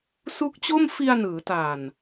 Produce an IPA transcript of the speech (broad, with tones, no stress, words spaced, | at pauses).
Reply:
su˦˥k̚t͡ɕo˥˩m fi˧a̯nɯː˩˦ta˨˩n